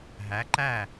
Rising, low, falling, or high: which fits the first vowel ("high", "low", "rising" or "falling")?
rising